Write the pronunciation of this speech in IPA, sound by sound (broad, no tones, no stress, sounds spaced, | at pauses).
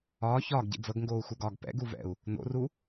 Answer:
ɒː ç ɒː ɡ ɟ ḭ d͡z ɤ ɡ ŋ ɡ oː u̯ x u ɡ ɒː ɡ p ɛ̰ ɡ u v ɛ̰ u̯ | n o̰ r u